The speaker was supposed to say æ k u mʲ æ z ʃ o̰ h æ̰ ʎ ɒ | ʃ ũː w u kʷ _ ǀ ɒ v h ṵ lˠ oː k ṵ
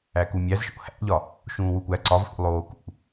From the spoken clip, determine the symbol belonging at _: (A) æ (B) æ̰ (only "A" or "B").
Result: A